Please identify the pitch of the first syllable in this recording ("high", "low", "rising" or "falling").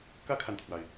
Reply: high